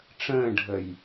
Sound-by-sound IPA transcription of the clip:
ʈ͡ʂ ə̃ː ɖʱ ə j

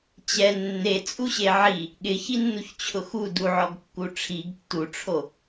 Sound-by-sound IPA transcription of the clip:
t͡ɕ ɛ nː e t͡sʼ u ɕ e ʕ i | ɠ ɪ ç i nː u ç t͡ɕʰ ʊ x u d u ʕ ɔ ɡ kː u ʈ͡ʂʰ i ɡ tː u ʈ͡ʂʰ o

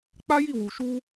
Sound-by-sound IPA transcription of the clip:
k͡p a˦ j i˦˨ w u˨ ʃ u˧

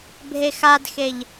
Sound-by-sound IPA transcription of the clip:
bʱ e x a d x e ʎ

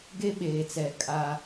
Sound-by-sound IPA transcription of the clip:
ɡ e˦ ɓ eː˨ t͡s ɛ˨ kʼ a˦

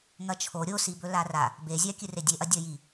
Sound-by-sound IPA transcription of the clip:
ŋ ɐ t͡ʃʰ o ɾʲ o s i b ɵ l a r a | b e zʲ a kʲ ɨ r e dʲ e ʔ ɐ dʲ ɐ j i

